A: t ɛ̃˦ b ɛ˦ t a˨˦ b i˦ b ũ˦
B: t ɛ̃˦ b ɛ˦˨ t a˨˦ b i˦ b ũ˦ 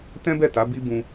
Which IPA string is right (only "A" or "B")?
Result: B